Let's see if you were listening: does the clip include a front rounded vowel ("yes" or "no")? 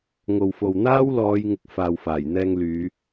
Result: yes